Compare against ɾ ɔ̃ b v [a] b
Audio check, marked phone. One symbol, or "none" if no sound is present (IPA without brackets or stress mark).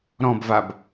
a